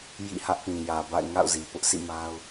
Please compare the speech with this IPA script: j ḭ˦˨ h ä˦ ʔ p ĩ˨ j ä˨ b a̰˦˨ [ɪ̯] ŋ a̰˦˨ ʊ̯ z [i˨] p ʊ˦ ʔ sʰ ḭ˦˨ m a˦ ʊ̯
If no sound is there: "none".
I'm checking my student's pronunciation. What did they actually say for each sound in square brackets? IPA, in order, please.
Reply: ɪ̯, i˨

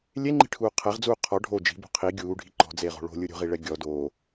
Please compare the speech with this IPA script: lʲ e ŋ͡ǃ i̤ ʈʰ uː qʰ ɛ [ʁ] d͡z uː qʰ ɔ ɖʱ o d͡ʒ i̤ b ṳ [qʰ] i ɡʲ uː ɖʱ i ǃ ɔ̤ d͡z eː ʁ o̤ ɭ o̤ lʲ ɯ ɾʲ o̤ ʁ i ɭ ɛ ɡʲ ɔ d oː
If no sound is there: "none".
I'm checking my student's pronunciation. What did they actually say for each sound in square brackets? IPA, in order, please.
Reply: ʁ, qʰ

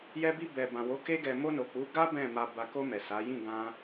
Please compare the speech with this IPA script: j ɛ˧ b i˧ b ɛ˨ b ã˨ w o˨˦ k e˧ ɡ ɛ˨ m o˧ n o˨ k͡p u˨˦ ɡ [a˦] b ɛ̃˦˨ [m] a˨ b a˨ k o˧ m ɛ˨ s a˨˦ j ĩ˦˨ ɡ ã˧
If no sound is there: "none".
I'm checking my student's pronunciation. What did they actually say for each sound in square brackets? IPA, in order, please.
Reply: a˦, m

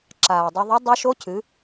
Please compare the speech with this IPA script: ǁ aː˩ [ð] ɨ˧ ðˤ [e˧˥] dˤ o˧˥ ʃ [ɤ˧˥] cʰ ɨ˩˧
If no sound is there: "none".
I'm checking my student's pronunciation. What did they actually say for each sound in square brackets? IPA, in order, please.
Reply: dˤ, e˧˥, o˧˥

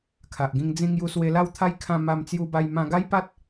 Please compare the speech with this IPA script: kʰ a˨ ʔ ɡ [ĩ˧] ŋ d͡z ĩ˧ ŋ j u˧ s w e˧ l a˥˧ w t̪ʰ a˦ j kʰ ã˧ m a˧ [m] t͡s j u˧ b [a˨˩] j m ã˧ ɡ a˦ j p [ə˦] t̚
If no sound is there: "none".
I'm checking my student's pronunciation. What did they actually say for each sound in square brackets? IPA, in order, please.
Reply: ĩ˧, m, a˧, a˦

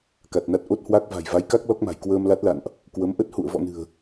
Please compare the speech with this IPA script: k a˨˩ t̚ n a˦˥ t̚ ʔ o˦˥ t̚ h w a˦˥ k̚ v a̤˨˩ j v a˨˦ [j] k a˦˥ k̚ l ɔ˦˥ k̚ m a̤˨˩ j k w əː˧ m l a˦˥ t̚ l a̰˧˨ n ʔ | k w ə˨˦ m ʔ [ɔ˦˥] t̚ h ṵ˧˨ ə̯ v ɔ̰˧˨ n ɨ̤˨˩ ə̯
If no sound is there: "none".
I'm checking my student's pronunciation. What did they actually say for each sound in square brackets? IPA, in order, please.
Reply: j, ə˦˥

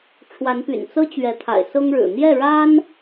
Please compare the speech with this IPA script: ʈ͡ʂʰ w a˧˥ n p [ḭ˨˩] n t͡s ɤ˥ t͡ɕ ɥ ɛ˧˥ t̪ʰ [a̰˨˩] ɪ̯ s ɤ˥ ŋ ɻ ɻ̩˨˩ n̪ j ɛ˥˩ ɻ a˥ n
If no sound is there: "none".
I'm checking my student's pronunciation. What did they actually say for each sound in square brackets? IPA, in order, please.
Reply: y̰˨˩, a̰˨˩

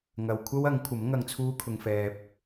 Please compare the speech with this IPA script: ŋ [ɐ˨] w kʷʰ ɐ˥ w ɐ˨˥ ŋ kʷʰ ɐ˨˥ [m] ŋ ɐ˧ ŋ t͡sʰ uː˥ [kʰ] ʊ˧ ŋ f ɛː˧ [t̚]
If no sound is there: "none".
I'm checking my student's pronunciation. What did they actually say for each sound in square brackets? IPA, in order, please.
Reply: ɐ˨, m, kʰ, p̚

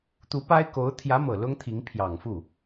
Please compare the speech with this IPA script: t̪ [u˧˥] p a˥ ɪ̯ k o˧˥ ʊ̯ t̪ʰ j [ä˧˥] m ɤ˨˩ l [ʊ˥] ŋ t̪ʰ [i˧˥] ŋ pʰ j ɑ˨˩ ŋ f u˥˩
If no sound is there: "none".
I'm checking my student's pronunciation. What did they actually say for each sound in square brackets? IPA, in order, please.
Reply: u˧˥, ä˧˥, ʊ˥, i˧˥

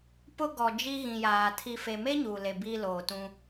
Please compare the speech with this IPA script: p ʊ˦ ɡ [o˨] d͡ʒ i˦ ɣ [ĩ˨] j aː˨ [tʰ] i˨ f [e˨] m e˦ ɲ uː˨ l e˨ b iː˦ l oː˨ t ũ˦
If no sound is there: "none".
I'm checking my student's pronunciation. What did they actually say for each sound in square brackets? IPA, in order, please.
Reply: ɔ˨, ĩ˨, tʰ, e˨

